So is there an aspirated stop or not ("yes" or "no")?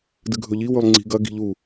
no